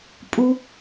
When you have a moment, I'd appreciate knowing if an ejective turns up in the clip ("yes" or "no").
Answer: yes